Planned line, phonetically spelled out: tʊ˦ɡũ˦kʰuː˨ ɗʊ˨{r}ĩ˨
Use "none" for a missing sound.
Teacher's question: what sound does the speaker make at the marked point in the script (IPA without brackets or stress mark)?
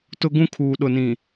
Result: n